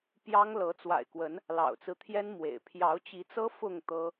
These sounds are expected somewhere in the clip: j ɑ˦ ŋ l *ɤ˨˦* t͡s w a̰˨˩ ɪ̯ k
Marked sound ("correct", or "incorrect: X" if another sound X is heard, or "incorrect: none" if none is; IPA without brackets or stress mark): correct